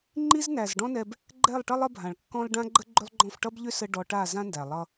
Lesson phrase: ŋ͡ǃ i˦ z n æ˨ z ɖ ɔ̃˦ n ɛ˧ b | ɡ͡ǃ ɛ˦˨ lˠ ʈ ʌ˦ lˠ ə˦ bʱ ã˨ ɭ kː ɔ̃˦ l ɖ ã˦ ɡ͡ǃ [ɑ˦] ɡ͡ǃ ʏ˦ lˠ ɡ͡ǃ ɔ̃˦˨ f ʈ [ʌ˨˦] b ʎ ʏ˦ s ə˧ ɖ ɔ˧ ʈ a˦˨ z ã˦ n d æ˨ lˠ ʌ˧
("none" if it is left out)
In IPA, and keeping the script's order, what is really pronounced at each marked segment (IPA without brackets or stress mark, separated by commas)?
ə˦, ʌ˦